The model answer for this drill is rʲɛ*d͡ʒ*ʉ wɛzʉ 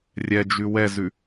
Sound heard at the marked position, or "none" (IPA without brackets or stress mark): d͡ʒ